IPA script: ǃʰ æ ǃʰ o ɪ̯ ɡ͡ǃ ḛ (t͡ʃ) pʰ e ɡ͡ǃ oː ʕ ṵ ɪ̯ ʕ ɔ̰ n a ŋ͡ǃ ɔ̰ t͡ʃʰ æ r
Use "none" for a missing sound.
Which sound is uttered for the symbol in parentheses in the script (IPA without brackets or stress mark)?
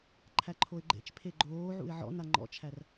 t͡ʃ